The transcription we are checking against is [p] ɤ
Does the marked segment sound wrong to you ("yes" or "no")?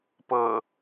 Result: no